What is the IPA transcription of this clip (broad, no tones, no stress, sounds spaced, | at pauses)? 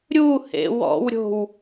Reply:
ɾʲ u h ḛ w ɔ̰ w ɾʲ o̤ w